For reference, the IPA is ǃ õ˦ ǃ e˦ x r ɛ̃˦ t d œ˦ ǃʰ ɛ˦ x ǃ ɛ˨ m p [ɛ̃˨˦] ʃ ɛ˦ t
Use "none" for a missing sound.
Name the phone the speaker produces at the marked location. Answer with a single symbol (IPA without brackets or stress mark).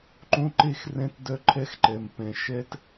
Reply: ɛ̃˨